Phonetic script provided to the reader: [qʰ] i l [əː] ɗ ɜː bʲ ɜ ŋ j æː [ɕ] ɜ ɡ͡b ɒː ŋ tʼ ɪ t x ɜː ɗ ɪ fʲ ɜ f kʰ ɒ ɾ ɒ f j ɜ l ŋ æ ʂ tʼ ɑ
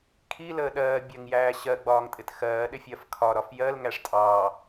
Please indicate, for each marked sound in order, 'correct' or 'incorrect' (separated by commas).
incorrect, correct, correct